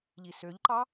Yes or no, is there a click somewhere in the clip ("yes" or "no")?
yes